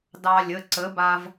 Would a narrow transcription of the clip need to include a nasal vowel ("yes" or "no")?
no